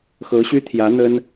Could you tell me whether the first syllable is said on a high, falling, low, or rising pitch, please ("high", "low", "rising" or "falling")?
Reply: rising